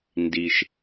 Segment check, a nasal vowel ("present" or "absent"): absent